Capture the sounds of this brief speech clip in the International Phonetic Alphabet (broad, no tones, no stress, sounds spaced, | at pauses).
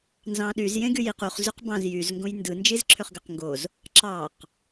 n z ɑ̃ ɗ y z j ẽ ɡ y j i q u χ z y q b ɑ̃ z j y z ŋ ɡ õ j n d ɯ n d͡ʒ i z ǁʰ ø χ ɡ ø q ŋ ɡ o z | ǁ ɑ q